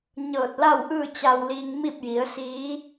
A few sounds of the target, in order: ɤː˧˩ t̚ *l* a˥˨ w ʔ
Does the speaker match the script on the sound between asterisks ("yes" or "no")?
yes